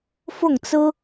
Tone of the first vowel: falling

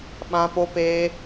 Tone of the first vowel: high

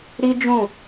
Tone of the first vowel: high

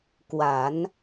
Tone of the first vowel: low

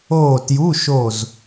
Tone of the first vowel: falling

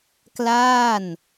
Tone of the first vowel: falling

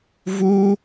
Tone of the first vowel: high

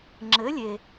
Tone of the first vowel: rising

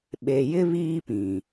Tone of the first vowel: low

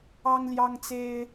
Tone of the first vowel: high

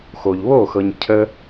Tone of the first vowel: low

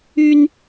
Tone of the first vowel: high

